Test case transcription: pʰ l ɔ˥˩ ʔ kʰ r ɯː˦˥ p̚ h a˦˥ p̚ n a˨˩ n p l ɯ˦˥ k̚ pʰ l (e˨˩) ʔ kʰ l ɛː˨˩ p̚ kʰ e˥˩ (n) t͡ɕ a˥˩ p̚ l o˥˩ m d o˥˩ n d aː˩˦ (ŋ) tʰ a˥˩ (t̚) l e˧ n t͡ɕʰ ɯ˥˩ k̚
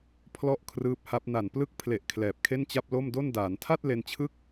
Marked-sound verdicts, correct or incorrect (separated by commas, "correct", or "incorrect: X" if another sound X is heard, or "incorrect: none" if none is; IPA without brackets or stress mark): correct, correct, incorrect: n, correct